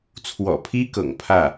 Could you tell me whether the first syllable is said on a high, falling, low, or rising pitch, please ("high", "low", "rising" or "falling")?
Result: low